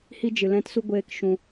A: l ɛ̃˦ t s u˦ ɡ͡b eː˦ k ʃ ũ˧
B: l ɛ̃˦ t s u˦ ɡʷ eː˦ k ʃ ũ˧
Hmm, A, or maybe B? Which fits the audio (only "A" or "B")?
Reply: B